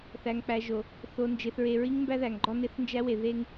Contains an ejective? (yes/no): no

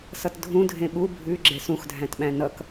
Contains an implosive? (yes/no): yes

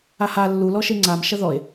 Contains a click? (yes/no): yes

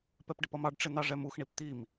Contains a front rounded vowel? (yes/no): no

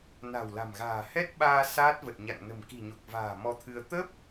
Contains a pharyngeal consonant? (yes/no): no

